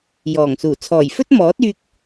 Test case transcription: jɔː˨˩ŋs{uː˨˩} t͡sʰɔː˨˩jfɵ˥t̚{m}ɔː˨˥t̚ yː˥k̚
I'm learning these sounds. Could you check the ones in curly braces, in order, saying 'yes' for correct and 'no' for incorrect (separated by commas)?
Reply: yes, yes